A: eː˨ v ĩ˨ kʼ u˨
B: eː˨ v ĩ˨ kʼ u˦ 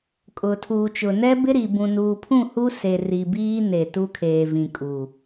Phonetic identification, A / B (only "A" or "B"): A